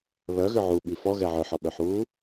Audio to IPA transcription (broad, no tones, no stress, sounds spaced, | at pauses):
β œ ɣ ʏ ʕ u ɓ i f ɔ ɣ ɛ ʕ œ ħ ɔ ɓ œ ħ uː